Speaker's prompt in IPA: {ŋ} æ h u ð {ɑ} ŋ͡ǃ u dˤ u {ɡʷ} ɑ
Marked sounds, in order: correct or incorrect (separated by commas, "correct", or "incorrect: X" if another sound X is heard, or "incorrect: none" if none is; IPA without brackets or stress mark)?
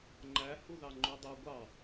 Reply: incorrect: ŋ͡ǃ, correct, correct